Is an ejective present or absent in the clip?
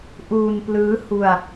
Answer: absent